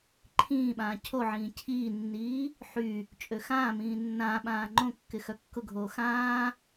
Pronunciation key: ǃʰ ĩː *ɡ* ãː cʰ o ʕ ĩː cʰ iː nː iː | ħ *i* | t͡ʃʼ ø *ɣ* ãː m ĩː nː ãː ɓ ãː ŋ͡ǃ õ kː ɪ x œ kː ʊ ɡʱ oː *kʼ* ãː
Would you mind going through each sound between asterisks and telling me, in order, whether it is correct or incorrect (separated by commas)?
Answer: incorrect, incorrect, incorrect, incorrect